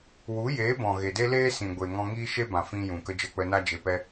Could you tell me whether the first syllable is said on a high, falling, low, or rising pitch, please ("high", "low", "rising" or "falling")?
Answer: rising